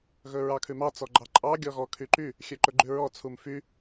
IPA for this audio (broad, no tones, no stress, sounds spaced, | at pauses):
ɣ ɵ ɹ ɑ kʰ ʉ m ɑ t͡s ɔ ɡ͡ǃ ɑ ǃʼ ɑ ɡʲ ɔ ɣ ɔ kʰ y ǃ y | xʲ ø ǃ ɵ ɡ͡ǃ ʉ ɹ ɔ t͡sʰ u m f y